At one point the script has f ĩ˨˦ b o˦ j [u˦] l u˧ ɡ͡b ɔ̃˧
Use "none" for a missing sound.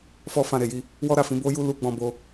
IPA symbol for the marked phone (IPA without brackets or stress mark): u˦